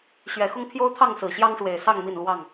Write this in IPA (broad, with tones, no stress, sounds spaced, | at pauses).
ɕ ɥ ɛ˨˩ x ʊ˦ ŋ pʰ j o˦ ʊ̯ t̪ʰ ɑ˥˨ ŋ s ɹ̩˨˩ ɕ j ɑ˦ ŋ ʂ w e˨˩ ɪ̯ s ɑ˥˨ ŋ m i˥˨ n l w ɑ˥˨ ŋ